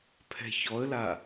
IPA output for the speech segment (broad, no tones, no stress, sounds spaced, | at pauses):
pʰ ɛ̤ ç ɔ ə̯ l a